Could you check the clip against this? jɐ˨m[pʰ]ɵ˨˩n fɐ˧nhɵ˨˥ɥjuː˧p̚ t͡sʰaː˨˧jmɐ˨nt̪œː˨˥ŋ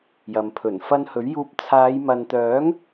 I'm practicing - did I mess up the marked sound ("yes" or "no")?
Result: no